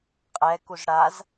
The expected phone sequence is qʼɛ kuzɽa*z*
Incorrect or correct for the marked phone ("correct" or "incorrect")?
correct